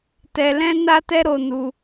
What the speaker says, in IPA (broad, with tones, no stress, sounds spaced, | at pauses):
t ɛ˧ l ɛ̃˦ n a˦ t ɛ˦ ɾ o˧ n u˧